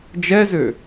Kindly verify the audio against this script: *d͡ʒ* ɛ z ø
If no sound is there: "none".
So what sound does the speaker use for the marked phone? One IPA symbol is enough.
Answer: d͡ʒ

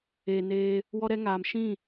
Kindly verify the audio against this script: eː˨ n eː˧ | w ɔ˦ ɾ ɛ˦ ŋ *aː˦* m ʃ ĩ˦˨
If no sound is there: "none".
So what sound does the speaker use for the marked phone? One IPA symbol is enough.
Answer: aː˨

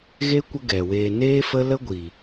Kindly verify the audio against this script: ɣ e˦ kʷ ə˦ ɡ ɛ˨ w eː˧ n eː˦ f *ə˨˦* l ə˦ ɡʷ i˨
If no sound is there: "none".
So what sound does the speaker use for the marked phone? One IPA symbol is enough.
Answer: ə˦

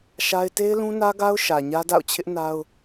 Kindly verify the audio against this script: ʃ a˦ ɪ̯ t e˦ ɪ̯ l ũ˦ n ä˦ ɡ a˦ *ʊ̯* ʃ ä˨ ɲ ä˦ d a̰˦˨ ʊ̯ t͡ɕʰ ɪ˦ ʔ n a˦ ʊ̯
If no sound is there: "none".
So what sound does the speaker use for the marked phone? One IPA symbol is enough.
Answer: ʊ̯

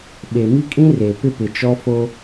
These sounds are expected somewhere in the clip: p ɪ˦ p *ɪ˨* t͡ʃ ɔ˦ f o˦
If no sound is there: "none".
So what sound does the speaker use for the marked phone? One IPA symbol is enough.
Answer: ɪ˨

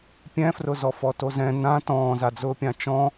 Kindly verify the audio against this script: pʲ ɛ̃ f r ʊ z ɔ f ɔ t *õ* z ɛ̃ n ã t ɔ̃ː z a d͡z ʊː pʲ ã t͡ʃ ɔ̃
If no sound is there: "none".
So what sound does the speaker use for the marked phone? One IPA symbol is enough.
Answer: o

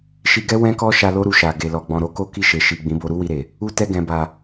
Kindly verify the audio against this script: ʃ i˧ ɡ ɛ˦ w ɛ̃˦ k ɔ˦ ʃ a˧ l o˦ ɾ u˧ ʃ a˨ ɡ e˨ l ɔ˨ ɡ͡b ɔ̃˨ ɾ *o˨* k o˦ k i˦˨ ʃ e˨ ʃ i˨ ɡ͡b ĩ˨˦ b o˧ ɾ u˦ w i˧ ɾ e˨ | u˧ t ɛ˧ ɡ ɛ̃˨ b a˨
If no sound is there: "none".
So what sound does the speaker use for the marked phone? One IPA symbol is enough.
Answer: o˨˦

